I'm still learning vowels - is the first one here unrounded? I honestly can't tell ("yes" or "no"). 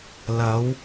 yes